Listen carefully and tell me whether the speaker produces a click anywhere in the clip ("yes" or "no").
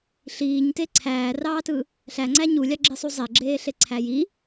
yes